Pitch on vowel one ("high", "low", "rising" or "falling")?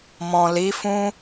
low